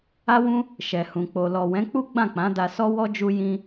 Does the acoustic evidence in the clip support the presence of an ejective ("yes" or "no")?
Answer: no